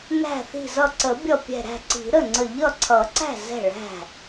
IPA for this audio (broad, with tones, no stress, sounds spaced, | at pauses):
n æ̤˧˩ θ i̤˧˩ z ʌ˧˩ ǀ ə˨˩˦ bʲ ʌ˧˩ pʲ ɛ̤˧˩ ɾ æ̤˥˩ ǀ i̤˨˩˦ ɾ ə˥˩ ŋ͡ǀ ə˧˩ ʎ ʌ˥˩ ǀʰ ʌ˨˩˦ ǀ æ̤˥˩ z ɛ̤˥˩ ɭ æ̤˥˩